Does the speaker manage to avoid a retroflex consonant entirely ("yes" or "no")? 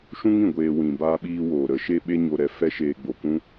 yes